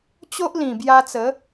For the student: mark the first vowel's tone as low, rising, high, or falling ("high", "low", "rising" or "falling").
high